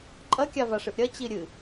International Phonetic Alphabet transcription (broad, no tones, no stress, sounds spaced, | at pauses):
ǃʼ ɐ kʲ a v a ʂ ɨ ʔ ɾʲ ɐ t͡ɕ i ɾʲ ɨ